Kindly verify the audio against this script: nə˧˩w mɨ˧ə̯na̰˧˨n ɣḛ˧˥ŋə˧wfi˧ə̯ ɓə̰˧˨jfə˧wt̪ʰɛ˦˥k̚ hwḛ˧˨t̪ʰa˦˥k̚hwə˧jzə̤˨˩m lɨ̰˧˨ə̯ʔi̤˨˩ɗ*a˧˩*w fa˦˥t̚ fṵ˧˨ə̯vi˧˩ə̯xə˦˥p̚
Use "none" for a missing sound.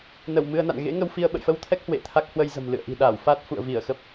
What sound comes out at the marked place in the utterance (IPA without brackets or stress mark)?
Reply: a˧˩